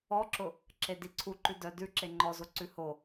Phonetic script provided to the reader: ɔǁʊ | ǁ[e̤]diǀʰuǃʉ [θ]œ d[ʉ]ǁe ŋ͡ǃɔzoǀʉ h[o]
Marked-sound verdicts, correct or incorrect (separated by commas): incorrect, incorrect, correct, correct